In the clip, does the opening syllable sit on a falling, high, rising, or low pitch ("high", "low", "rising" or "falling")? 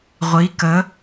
rising